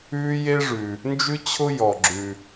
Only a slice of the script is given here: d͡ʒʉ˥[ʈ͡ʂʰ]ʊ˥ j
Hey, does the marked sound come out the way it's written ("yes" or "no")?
no